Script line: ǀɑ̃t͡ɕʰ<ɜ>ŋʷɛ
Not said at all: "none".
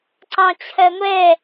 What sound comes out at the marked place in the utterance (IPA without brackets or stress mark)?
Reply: ɜ